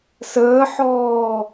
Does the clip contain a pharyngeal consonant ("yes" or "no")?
yes